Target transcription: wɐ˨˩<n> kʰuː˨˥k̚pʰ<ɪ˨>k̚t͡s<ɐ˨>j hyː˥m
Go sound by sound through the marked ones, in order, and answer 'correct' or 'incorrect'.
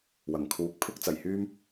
incorrect: ŋ, incorrect: ɪ˥, incorrect: ɐ˨˩

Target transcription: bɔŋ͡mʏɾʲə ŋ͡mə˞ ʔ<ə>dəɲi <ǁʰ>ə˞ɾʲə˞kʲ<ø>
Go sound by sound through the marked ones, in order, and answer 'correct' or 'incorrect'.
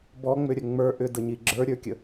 incorrect: ʏ, incorrect: ɡ͡ǁ, incorrect: ə

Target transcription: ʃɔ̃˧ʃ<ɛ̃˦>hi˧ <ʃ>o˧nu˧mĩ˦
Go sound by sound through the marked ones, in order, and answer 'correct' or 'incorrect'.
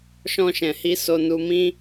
incorrect: ɛ̃˨, incorrect: s

